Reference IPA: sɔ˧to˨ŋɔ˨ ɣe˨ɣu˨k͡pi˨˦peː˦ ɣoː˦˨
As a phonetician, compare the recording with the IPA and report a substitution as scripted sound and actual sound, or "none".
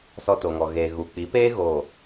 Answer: e˨ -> eː˨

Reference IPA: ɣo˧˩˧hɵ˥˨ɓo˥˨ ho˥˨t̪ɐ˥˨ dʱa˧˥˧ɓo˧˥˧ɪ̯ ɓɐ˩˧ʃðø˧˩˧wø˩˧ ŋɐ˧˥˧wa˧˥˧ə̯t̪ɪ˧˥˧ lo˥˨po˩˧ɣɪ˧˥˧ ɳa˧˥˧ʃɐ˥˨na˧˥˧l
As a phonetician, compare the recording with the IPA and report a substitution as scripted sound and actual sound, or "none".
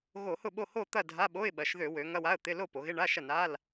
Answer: ɵ˥˨ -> ʊ˥˨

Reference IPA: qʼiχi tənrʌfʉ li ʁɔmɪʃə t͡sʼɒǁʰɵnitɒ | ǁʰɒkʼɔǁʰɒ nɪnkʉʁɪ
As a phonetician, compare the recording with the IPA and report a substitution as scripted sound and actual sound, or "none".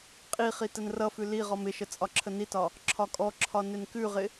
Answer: ɵ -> ə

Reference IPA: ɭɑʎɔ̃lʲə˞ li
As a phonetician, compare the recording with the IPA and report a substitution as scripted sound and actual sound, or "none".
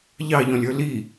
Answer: ɭ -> ʎ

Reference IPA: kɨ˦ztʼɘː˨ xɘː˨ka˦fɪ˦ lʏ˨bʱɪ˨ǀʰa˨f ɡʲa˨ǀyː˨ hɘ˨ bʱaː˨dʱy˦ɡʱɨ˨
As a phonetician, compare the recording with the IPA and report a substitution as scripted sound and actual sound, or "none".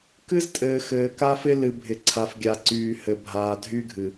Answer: ʏ˨ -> ɨ˨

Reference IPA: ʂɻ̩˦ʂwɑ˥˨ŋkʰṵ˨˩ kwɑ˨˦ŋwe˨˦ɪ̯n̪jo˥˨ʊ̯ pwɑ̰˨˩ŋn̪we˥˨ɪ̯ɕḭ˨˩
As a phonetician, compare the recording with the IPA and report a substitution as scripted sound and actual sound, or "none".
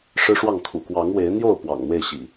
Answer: none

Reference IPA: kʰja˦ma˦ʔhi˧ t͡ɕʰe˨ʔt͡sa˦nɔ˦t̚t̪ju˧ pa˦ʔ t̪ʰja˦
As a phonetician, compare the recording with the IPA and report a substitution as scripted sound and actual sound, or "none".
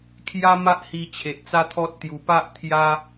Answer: n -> t̪ʰ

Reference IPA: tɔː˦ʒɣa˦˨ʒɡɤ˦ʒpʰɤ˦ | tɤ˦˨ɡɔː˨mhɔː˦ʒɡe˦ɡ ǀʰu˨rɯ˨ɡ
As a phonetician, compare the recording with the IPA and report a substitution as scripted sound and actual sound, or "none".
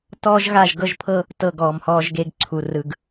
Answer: none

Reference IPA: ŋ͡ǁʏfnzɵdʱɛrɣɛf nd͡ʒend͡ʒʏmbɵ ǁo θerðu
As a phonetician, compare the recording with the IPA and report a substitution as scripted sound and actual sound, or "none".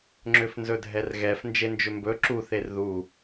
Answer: o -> u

